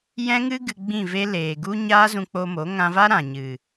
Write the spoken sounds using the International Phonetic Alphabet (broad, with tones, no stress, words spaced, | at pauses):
jɛ̃˦ŋɨ˦ ɡɨ˧ɡ͡bĩ˦˨ve˦ leː˨ɡu˦ ɲaː˦zũ˧k͡po˧mo˨˦ ŋã˧va˦ ɾã˨ ɲɨ˨